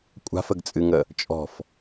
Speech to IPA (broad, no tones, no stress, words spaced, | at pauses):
kʷʼa̤fəɡt͡sʼɨŋə | t͡ʃʼɔ̤f